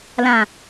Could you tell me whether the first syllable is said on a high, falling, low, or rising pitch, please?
low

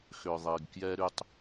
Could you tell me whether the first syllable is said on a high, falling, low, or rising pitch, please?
low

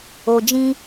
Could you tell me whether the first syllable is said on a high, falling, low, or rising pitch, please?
low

